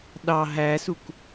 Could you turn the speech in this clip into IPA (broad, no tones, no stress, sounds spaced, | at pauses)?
ɗ ɑ ɦ æ s u k